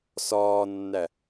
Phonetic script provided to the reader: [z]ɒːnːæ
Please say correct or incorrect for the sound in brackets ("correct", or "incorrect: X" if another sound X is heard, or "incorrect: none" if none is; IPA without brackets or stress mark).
incorrect: s